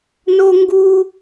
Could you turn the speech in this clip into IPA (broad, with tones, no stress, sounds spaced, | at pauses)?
n o˥ ŋ ɡ u˥